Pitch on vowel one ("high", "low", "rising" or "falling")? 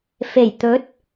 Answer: low